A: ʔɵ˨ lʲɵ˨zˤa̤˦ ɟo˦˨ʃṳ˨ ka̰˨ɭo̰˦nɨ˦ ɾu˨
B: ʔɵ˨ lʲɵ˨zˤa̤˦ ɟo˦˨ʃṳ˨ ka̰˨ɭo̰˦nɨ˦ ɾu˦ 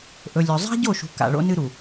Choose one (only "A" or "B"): A